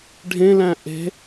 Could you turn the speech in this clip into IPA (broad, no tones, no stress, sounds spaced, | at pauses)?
ɖʱ ẽ l æ̃ ʔ e̤